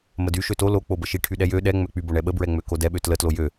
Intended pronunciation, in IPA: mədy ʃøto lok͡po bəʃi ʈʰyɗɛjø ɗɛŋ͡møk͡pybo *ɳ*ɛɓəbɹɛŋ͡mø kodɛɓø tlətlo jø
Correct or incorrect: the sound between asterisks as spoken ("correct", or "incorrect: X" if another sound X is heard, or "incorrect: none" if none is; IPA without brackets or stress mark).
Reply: correct